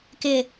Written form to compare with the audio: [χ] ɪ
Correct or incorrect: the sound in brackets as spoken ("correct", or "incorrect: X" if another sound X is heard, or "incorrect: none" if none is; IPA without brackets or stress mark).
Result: incorrect: k